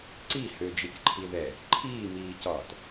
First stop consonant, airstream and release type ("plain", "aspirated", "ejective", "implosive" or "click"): click